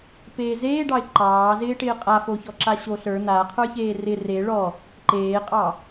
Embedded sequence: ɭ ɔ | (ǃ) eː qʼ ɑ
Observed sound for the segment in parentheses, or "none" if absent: ǃ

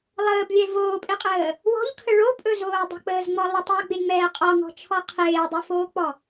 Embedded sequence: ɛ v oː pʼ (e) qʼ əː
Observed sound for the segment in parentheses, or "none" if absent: e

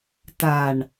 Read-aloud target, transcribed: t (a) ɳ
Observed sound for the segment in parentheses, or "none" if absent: a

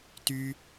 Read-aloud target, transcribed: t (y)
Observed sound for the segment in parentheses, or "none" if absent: y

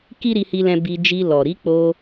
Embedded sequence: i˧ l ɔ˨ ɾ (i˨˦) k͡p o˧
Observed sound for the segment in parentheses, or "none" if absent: i˨˦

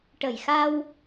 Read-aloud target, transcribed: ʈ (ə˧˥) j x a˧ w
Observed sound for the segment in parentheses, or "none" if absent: ə˨˩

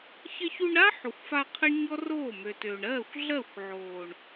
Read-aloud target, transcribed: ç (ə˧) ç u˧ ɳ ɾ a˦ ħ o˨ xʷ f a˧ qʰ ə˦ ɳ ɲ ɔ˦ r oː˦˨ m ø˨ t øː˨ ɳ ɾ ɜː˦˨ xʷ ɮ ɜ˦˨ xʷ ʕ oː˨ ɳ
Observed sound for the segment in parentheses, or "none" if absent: ə˧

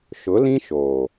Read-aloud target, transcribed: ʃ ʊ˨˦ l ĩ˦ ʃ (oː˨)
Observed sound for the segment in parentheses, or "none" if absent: oː˨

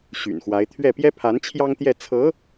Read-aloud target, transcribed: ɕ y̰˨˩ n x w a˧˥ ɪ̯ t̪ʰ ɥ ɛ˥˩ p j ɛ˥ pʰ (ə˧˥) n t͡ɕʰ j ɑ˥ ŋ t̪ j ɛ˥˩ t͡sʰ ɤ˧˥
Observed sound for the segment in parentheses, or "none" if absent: a˧˥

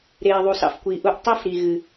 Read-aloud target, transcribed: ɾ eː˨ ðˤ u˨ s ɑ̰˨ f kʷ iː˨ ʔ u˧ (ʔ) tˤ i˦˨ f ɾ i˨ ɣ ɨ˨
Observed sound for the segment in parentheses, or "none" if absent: ʔ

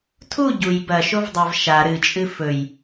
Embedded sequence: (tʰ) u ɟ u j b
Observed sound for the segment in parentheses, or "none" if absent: tʰ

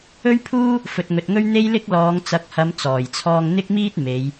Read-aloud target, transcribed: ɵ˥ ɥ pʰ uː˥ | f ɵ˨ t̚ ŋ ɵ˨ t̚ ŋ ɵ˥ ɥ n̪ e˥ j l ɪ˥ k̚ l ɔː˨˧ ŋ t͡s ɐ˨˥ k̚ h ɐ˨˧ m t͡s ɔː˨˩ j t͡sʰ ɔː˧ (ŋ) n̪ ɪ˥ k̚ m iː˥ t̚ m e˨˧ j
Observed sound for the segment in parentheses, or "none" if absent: ŋ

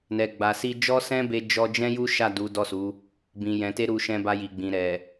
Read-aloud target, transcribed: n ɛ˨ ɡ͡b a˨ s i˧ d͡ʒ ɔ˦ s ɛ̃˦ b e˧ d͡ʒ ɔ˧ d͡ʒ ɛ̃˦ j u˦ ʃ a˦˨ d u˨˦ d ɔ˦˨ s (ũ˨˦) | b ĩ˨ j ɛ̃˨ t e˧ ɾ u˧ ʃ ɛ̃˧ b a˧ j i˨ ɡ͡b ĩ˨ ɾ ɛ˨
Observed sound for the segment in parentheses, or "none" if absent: u˨˦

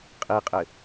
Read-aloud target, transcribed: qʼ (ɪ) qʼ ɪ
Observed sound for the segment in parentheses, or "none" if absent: i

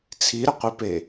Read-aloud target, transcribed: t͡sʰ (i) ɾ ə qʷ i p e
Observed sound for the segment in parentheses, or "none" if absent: i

